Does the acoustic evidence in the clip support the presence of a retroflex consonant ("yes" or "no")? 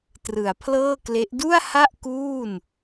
no